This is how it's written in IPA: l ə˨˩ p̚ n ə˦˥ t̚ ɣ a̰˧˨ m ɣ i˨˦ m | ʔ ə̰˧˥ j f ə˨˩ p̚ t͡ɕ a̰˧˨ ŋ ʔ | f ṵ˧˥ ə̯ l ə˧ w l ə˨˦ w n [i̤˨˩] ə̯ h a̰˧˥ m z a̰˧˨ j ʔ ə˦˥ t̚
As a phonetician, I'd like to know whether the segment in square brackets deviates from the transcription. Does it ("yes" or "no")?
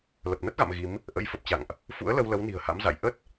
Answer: no